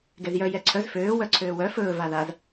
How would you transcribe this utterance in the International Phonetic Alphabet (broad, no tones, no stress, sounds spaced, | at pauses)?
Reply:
ɡ ɛ z j œ j ɛ ǀʰ œ z f øː w œ ǀʰ øː w œ f ɵː v a ð a z